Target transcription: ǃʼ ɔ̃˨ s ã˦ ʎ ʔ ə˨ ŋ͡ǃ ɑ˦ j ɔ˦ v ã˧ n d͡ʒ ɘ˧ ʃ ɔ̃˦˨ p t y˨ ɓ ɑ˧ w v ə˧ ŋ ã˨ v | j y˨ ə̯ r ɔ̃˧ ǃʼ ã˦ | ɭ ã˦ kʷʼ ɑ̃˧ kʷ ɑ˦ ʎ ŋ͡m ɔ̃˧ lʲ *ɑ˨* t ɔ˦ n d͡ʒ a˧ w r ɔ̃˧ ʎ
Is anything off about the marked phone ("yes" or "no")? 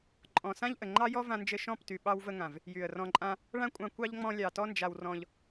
no